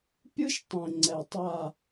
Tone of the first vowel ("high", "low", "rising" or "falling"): high